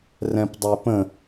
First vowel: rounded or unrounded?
unrounded